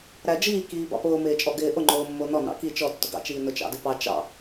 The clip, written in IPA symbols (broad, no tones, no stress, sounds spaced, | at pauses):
ɾ æ d͡ʒ iː k iː b ɑ̰ p ʊː m ɪː t͡ʃʼ ɔ ɡ ɪː ʔ ʊ ŋ͡ǃ ʊː mː ʊː n ɔ n ɑ̰ k i t͡ʃ ɔ tː ʊ ɡ ɑ̰ t͡ʃ iː n ʊ t͡ʃ ɑ̰ d ɪ p ɑ t͡ʃ ɑ̰